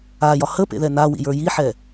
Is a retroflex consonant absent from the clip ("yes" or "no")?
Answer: yes